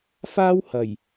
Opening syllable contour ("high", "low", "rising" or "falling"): high